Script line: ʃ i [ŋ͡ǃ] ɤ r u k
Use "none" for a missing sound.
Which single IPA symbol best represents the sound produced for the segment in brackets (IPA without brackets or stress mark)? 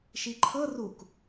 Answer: ǃʰ